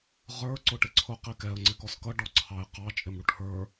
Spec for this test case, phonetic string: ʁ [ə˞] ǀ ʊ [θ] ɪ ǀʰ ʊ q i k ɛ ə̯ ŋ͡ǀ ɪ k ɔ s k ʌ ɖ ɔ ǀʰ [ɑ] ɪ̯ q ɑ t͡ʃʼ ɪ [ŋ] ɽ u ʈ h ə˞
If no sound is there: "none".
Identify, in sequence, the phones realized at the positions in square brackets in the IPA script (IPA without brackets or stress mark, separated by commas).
ə˞, ʈ, ɑ, m